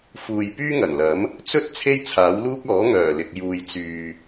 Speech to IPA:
f uː˨ j p yː˥ ŋ ɐ˨˩ n l ɐ˨˥ m | t͡s ɵ˥ t̚ t͡sʰ e˥ j t͡sʰ aː˨˥ w l uː˥ k̚ ɔː˨˥ ŋ œː˨˩ l ɪ˨ k̚ j uː˨ j t͡s yː˨

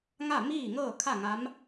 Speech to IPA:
ŋ a˥˨ m iː˥˨ ŋ ɤː˥˨ kʰ a˥˨ ŋ a˧˥ m

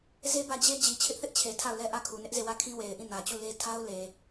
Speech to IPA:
z e˦ b ä˦˨ d͡ʑ e˦ d͡ʑ i˨ t͡ɕʰ ɪ˦ ʔ θ ɪ˦ ʔ t͡ɕʰ e˨ tʰ a˦˨ ʊ̯ l ɛ˦ ʔ ä˦˨ kʰ u˨ n ɪ˦ ʔ z e˦˨ w ä˦˨ kʰ ĩ˦ w e˨ ɪ̯ ʔ ĩ˦˨ n ä˨ t͡ɕ u˦˨ l e˦ tʰ a˦ ʊ̯ l e˨

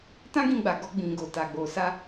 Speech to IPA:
t ã˦ ɡ ĩ˧ ɡ͡b a˨ ɡ ɔ˧ ɡ͡b ĩ˨ ɡ o˨ t a˨ ɡ͡b o˨ s a˧

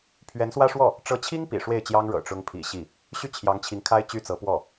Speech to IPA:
pʰ ɥ ɛ˧˥ n s w ä˥ ʂ w ɔ˥˩ | ʈ͡ʂ ɤ˧˥ t͡ɕʰ i˥ ŋ p ḭ˨˩ ʂ w e˥˩ ɪ̯ t͡ɕ j ɑ˥ ŋ ɻ ɤ̰˨˩ ʈ͡ʂ ʊ˥ ŋ pʰ ḭ˨˩ ɕ i˥˩ | ɕ y˥˩ t͡ɕʰ j ɑ˧˥ ŋ t͡ɕʰ i˧˥ ŋ kʰ a˥ ɪ̯ t͡ɕ y˥ t͡s ɤ˧˥ p w ɔ˥˩

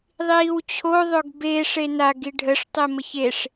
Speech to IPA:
ðˤ iː w t͡ɕʰ o ðˤ ɵ ɡ b e ʂ e n a ɡ i ɖʱ ə ʂ tˤ e m ə ç e ʂ

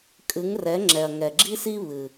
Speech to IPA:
kʼ ɨ˨˦ ŋ r ɛ˨˦ ŋ͡ǁ ɛ˨ ɐ̯ ŋ ɛ˨ ɡ͡ǁ i˦ s i˦ β ɨ˨

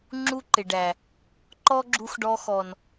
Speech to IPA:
ŋ͡ǁ u˦ ǃ ɪ˨ ɖ æ˨ | ǃ ɔ˦ ɡ͡ǁ u˧ x ɖ ɔ˧ x ɔ˨ n

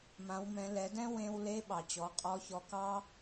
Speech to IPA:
m ã˩˧ w m ɛ̃˩˧ l ɛ˩˧ d ɛ̃˥ w ẽ˧ w l e˧˥ ɓ ɑ˩ t͡ɕ ɔ˩˧ qʼ ɔ˧˥ ç ɔ˧ k ɑ˥

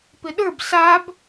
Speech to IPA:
p ɪ ɗ ə˞ b s a b

